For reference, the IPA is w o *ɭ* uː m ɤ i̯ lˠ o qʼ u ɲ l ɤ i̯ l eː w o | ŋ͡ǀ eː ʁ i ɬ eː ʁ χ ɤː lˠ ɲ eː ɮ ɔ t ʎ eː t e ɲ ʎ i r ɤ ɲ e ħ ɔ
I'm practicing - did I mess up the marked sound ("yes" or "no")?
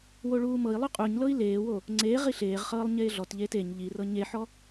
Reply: no